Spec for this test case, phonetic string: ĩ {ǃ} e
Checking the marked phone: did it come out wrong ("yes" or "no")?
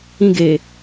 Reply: yes